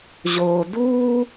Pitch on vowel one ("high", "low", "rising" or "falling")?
low